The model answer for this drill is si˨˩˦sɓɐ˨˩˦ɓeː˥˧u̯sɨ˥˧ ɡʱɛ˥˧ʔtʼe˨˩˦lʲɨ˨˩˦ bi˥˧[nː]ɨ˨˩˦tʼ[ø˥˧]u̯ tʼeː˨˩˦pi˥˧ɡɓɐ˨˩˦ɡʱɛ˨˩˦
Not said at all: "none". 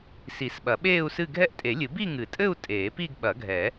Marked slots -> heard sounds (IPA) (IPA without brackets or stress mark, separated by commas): ŋ, ɘ˥˧